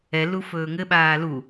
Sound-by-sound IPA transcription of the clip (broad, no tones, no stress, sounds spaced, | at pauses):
ɛ l u f ɵː ŋ ɘ ɓ aː l u